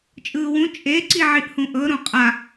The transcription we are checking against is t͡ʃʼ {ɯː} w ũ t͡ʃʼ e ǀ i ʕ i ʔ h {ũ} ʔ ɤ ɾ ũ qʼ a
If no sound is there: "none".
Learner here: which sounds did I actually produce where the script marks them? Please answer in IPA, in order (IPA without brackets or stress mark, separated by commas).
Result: ɯː, ũ